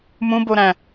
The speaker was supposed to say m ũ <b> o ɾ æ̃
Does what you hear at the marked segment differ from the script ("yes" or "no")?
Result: no